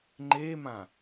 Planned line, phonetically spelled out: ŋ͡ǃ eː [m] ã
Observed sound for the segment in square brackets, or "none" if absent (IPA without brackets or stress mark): m